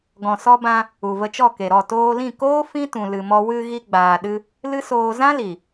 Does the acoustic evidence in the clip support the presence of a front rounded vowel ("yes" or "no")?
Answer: no